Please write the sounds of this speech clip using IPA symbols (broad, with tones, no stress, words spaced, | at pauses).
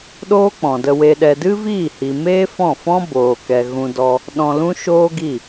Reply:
ɗoː˦k͡pɔ̃˨də˧we˧ ɗɛ˨dɨ˦viː˦˨hi˨ meː˦fɔ̃˦˨fɔ̃˦ boː˨kɛ˨ ɣũ˧dɔ˧ | ɗɔ̃˧lũ˦ʃoː˦ɡi˦˨